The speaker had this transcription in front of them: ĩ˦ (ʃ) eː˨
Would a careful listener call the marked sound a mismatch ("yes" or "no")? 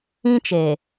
yes